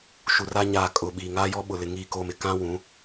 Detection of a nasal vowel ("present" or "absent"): present